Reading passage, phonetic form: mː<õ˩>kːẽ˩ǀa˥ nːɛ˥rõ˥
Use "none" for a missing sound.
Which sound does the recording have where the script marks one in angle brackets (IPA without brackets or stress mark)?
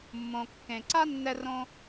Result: õ˩